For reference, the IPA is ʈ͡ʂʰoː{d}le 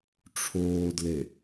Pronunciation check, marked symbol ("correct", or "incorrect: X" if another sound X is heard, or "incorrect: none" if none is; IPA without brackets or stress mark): correct